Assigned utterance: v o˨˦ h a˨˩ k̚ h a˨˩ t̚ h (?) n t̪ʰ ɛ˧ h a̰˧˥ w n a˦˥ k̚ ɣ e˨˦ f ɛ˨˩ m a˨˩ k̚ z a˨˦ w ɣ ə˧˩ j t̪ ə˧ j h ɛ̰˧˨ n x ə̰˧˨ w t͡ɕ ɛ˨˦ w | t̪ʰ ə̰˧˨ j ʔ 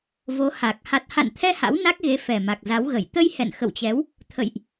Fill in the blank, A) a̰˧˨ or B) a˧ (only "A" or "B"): A